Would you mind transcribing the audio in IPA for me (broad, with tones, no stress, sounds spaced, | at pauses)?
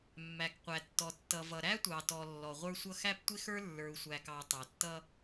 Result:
mː æ˨ k qʷ æ˨ tː ɔ˨ tː ʌ˨ v ʌ˨ ɾ æ˦ tʷ ɑ˨ t ɔ˨ lː ɔ˨ ʁʷ ə˞˦ sʷ ʌ˦ x æ˦ p tʷ ɪ˦ x ə˞˦ lː ə˞˨ u̯ sʷ æ˨ k ɑ˨ tˤ ɑ˨ tː ʌ˦